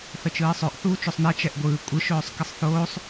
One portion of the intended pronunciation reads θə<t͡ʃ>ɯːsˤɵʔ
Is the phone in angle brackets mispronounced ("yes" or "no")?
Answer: no